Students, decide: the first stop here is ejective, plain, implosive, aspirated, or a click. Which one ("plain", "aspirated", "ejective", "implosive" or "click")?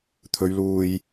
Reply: aspirated